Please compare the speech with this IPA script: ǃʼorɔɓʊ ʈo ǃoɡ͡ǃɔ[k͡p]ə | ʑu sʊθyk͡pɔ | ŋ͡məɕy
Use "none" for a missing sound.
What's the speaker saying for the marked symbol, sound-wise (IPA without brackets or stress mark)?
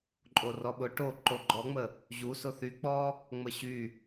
ŋ͡m